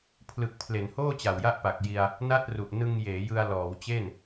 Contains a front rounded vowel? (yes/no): no